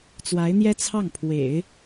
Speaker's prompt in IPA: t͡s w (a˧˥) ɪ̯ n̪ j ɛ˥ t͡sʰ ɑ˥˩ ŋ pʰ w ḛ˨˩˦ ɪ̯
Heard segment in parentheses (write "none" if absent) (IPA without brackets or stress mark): a˧˥